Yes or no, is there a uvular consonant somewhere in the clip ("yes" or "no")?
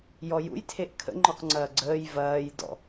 yes